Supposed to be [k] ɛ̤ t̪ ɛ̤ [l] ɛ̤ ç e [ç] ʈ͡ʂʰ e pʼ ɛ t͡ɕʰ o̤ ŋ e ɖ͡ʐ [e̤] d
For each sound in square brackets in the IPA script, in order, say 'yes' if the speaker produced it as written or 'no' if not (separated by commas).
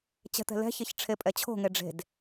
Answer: no, yes, yes, yes